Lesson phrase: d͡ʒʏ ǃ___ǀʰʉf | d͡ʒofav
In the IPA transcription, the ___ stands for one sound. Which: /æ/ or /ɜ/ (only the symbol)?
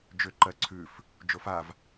ɜ